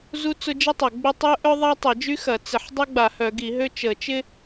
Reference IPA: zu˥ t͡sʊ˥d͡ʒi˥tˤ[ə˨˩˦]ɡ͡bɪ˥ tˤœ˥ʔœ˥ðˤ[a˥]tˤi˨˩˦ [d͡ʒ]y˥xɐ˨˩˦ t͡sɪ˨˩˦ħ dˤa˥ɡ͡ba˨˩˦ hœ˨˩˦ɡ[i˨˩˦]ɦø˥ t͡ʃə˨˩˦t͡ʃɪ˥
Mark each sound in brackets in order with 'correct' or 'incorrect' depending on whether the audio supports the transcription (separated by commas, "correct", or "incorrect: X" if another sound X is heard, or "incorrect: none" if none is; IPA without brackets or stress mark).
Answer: incorrect: ɐ˨˩˦, correct, correct, correct